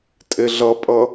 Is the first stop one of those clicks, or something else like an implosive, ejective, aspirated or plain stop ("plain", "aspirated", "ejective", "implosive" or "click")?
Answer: ejective